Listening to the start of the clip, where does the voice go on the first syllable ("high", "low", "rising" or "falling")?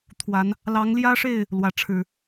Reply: rising